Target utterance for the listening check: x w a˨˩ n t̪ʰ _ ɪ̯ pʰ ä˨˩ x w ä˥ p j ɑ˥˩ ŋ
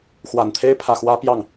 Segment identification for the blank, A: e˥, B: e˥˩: A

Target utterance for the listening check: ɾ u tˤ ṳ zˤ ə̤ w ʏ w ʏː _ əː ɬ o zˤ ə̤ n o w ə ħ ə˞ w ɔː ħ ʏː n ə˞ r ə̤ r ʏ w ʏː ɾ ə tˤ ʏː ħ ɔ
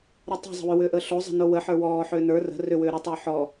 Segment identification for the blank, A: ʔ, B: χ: A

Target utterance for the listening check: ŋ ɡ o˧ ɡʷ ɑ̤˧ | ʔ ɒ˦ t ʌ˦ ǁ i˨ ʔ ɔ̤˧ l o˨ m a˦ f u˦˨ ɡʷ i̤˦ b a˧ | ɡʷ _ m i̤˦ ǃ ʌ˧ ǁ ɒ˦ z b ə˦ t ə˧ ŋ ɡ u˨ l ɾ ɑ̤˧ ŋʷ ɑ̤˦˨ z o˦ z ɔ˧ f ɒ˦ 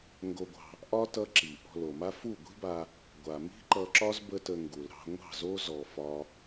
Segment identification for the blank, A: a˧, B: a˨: B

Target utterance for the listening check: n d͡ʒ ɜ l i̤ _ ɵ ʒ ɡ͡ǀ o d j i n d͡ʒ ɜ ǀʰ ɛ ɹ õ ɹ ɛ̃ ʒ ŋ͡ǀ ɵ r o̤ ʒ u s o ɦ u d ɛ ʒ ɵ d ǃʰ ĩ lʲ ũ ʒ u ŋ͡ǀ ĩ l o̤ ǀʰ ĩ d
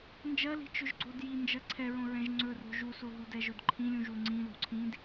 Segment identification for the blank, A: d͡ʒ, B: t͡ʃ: B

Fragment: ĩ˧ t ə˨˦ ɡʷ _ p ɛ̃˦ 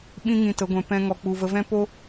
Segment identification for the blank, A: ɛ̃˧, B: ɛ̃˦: A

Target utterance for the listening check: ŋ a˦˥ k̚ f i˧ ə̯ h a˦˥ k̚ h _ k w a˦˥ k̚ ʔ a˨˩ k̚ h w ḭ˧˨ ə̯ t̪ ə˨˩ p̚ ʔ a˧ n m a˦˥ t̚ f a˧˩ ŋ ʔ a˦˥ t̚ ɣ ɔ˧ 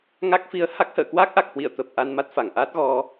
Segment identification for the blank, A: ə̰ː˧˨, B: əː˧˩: A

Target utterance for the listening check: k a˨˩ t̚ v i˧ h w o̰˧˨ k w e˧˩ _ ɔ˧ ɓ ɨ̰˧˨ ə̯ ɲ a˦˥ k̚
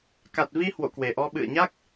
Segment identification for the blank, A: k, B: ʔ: B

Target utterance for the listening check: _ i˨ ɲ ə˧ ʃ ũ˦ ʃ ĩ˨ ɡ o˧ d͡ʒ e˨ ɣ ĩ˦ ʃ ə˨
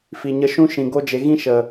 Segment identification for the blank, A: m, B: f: B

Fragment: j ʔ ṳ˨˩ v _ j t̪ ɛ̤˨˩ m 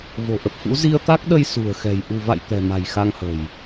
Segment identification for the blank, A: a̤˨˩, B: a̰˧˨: B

